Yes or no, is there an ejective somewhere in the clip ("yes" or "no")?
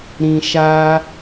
no